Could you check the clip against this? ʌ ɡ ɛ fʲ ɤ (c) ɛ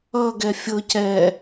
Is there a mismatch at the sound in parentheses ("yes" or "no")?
no